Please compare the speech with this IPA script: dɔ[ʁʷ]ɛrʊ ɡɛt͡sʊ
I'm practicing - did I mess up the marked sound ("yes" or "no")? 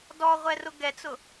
no